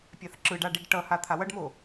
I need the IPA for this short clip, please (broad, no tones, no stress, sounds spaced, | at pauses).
pʲ a θ ǁ ɯ ɖ a ɖ i ɖ ʈ ʌ h a t̪ʰ a w ʌ ɖ m o